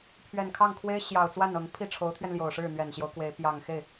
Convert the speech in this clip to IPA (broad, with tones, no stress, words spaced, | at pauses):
pʰɥɛ˨˩nkʰɑ˥˩ŋkʰwe˥ɪ̯ ɕjɑ˨˩ʊ̯t͡swa˥˩n ɤ˧˥ŋ pʰi˥˩ʈ͡ʂʰo˧˥ʊ̯t̪ʰɥɛ˧nljo˨˩ʊ̯ ʂɻ̩˥˩n̪ɥɛ˨˩nɕjo˦ʊ̯kwe˧˥ɪ̯ pjɑ˨˩ŋxe˥˩ɪ̯